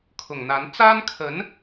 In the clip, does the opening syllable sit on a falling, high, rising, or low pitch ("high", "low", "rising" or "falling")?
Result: low